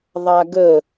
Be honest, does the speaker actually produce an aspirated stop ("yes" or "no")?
no